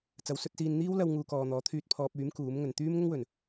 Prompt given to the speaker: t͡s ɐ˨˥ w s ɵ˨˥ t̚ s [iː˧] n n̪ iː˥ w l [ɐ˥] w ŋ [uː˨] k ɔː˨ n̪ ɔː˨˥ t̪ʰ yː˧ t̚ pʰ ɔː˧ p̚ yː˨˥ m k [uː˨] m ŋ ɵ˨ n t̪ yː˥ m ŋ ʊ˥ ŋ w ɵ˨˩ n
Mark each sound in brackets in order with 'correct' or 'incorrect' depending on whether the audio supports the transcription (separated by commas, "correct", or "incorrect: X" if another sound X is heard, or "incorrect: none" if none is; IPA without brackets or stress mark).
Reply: correct, incorrect: ɐ˧, correct, incorrect: uː˨˥